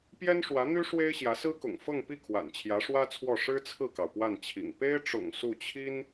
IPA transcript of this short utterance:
p j ɛ˥ n ʂ w ä˧˥ n̪ y˥ ʂ w e˥ ɪ̯ ɕ j ä˧˥ s ɹ̩˥ k ʊ̰˨˩ ŋ f ɤ˥˧ ŋ p i˥˩ kʰ w a̰˨˩ n t͡ɕʰ j ä˧˥ ʂ w ä˥ t͡sʰ w ɔ˥˩ ʂ ɻ̩˥ t͡sʰ ɹ̩˥˩ k ɑ˩ ʊ̯ p w a˥˩ n t͡ɕʰ ḭ˨˩ ŋ p e˥ ɪ̯ ʈ͡ʂ ʊ̰˨˩ ŋ s u˥˩ t͡ɕʰ i˥ n

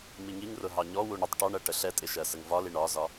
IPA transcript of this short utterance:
m i ŋ i ŋ r ʊ ɦ ɑ ɲ ɔ w u ɳ ə tˤ ʈ ɒ ɳ ɜ ʈ ə ɬ ɛ tʼ ɪ ʃ ɜ s ə ŋ v ɒ l i ɳ ɒ z ɒ

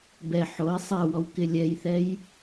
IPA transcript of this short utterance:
b ɛ ħ o ɪ̯ sˤ ɛ w ɔ w k ɪ lʲ ɛ j θ ɛ j

